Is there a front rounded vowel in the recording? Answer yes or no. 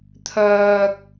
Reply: yes